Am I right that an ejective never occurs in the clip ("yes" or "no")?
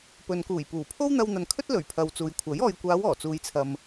yes